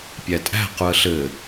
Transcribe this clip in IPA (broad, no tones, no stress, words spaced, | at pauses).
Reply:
pʲætʼæ̤ quə̯ɬɘ